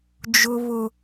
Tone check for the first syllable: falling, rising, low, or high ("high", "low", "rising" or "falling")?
high